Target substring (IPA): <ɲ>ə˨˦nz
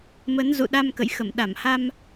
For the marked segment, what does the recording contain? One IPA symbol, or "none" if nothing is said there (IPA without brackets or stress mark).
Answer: m